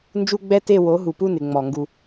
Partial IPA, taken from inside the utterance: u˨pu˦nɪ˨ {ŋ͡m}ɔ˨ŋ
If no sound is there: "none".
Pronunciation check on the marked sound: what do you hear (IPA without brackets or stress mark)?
ŋ͡m